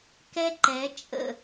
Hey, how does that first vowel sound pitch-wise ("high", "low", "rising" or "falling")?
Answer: high